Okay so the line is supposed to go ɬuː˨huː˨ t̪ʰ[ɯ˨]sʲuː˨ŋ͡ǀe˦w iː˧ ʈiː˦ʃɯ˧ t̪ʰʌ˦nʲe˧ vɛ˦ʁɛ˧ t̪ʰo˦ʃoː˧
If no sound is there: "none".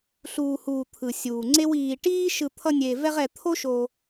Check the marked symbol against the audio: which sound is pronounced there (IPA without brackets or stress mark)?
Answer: ɯ˨